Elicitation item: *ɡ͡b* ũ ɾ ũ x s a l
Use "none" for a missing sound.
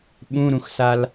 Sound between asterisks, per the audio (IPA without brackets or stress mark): ɓ